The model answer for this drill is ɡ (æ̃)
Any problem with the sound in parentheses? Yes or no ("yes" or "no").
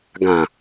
yes